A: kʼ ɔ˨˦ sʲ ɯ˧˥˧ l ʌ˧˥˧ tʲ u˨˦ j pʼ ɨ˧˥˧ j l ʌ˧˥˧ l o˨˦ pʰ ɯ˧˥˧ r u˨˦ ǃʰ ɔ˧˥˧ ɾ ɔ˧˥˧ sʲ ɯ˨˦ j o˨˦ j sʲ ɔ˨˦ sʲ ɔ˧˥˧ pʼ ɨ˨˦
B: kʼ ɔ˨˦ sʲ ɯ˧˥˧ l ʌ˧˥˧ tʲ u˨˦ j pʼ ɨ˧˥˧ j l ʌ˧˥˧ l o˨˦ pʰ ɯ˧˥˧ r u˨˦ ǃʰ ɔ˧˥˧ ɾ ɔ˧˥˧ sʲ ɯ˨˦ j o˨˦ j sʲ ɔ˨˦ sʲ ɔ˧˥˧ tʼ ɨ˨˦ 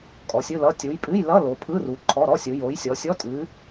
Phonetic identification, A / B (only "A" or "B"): B